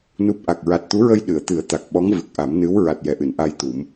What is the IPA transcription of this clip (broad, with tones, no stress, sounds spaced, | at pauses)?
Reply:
n u˦˥ p̚ ʔ a˨˩ k̚ ɹ a˨˩ t̚ t̪ u˧˥ ɹ ə˧ j ɗ ɨ˨˩˨ ə̯ t̪ ɨ˨˩˦ ə̯ t̪ a˨˩ k̚ ɓ ɔ˧˥ ŋ v ɨ˨˩ k̚ ʔ a˨˩˦ m n ɨ˧˥ w ɹ a˨˩ t̚ j ɛ˨˩ ʔ ɨ˨˩˨ n ʔ a˧ j t̪ u˨˩˦ m